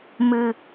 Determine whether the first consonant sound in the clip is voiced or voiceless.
voiced